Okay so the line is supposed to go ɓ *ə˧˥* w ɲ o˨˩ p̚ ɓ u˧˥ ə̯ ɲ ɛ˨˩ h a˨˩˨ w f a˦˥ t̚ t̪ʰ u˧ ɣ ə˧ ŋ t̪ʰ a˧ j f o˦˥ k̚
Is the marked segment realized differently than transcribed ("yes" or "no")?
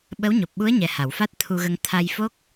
no